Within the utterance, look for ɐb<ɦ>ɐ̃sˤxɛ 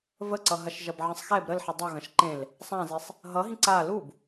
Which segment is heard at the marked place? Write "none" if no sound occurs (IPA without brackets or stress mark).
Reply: ʕ